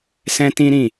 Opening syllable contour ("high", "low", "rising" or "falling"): high